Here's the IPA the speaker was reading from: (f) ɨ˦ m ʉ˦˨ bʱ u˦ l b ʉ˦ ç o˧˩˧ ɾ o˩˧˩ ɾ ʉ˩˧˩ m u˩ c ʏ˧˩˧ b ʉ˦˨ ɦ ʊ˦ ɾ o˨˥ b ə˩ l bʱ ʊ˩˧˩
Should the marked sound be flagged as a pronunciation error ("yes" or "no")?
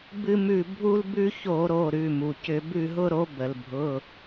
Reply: yes